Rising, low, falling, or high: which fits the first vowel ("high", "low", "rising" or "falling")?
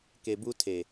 low